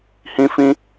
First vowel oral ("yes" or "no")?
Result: no